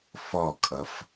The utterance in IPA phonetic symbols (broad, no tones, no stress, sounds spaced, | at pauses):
f ɔ kʼ ʌ f